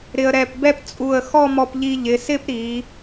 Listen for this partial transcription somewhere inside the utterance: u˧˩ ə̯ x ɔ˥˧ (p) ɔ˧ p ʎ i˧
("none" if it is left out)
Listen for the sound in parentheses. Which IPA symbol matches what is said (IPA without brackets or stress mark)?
m